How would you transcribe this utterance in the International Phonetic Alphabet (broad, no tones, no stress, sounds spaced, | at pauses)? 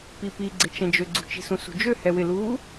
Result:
p i p i ɡ͡ǀ ɪ t͡ʃ ɛ̃ d͡ʒ ø ɡ͡ǀ ṳ t͡ʃ i̤ s ũ s ṳ d͡ʒ ø h ɛ w ɪ l uː